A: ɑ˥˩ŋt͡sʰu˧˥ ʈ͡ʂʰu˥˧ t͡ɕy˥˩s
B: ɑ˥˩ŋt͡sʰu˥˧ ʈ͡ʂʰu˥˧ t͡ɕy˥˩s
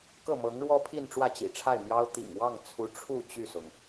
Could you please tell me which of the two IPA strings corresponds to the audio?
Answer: A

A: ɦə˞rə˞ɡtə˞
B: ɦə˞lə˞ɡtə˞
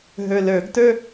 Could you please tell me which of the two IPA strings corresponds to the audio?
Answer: B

